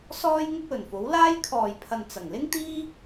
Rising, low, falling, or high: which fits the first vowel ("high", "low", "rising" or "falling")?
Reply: high